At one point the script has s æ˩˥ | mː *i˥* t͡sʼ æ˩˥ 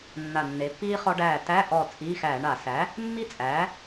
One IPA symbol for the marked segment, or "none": i˥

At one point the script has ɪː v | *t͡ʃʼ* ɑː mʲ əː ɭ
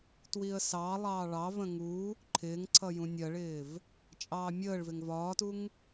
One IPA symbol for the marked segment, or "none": t͡ʃʼ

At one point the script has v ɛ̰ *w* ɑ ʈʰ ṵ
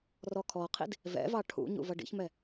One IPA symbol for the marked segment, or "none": v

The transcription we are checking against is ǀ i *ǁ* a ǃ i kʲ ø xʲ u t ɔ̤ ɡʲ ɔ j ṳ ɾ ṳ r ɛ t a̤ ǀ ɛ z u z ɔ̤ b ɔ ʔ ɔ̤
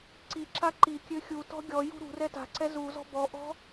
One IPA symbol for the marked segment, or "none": ǁ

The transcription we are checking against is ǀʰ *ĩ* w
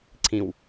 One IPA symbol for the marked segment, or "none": ĩ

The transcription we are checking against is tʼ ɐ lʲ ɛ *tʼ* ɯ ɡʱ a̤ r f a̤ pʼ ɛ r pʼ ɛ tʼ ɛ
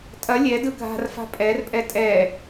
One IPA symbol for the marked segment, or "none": d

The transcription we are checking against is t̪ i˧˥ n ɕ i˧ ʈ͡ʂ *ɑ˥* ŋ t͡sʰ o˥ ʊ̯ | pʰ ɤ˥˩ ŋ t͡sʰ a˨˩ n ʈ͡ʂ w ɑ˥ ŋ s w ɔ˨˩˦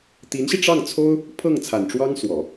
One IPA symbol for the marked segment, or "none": ɑ˥˩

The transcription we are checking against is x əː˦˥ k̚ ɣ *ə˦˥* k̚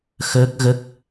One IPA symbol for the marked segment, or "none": ə˦˥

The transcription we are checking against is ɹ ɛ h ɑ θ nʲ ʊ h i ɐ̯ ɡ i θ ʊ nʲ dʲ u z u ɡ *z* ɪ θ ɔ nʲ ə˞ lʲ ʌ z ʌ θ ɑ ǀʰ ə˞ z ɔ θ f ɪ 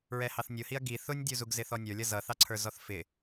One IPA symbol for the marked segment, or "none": z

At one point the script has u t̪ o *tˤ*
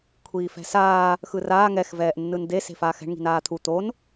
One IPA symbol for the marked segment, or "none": n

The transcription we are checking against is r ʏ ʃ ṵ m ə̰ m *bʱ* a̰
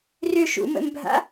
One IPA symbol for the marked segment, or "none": bʱ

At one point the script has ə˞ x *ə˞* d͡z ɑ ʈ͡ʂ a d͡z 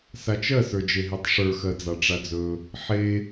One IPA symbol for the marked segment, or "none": ɜ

